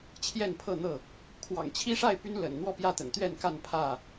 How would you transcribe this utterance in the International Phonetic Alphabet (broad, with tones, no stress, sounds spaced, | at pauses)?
t͡ɕʰ j ɛ˥˨ n pʰ ɤ˥˨ n̪ ɤ˥˨ | kʰ w ɑ̰˨˩ ŋ t͡ɕʰ i˦ ʂ a˥˨ ɪ̯ p y˦ n l ə̰˨˩ n n̪ w ɔ˥˨ p j ä˥˨ t̪ ə̰˨˩ n t̪ ɥ ɛ˥˨ n k a˥˨ n pʰ ä˥˨